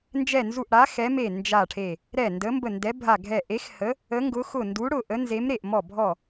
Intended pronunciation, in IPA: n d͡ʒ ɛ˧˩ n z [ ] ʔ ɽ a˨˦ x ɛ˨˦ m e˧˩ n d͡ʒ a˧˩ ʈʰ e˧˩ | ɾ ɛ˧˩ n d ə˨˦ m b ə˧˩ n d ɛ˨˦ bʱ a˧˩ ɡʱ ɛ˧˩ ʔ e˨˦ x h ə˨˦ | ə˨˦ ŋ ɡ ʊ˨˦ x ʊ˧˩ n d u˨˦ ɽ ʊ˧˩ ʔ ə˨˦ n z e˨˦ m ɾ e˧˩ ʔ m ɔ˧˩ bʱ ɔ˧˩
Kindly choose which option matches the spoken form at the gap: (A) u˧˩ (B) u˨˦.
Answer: A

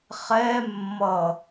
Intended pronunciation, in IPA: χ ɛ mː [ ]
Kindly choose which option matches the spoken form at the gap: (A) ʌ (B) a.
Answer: A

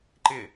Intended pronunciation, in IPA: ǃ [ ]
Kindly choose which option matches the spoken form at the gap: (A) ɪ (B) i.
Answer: A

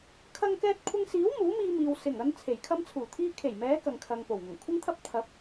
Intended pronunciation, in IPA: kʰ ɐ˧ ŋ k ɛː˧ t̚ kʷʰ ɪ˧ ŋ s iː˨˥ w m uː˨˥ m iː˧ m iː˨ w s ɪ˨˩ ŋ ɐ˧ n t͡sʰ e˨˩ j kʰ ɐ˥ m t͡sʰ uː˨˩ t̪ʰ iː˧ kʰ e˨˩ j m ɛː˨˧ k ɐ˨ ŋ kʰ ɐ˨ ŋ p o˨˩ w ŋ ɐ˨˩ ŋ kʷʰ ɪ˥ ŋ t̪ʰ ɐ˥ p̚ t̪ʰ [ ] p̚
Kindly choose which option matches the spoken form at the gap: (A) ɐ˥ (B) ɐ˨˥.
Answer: B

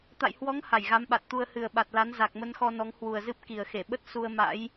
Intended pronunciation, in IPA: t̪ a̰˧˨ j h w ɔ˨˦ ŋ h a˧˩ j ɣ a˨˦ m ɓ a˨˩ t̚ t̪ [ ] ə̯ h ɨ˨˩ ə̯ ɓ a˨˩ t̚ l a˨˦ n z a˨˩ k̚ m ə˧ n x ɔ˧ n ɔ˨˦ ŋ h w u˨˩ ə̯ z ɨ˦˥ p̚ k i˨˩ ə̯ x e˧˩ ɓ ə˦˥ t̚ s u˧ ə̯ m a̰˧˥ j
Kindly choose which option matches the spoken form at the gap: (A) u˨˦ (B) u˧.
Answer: B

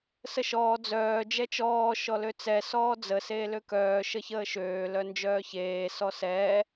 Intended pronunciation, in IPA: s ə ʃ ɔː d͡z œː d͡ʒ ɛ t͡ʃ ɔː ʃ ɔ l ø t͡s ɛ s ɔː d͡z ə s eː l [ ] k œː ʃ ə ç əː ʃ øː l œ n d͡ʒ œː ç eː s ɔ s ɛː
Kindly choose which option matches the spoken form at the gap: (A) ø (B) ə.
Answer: A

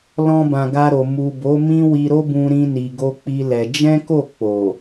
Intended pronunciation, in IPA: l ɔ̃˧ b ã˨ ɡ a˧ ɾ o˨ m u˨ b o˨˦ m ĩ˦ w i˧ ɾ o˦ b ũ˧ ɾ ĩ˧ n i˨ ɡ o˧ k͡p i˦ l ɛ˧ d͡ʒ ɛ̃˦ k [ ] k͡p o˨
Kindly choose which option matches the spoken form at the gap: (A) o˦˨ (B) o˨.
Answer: A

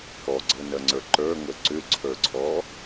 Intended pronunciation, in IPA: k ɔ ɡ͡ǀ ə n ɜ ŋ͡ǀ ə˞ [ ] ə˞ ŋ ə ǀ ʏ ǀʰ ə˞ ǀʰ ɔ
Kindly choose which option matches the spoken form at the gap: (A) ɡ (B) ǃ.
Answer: B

